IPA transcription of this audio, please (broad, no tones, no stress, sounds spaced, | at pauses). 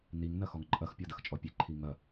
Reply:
n i ŋ n ɐ x ɔ ŋ ǃʼ ɐ x pʲ ɔ d ɐ x t͡ʃʼ ɔ pʲ e ǃʰ i ŋ ɐ